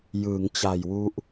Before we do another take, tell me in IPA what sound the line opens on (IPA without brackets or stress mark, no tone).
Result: j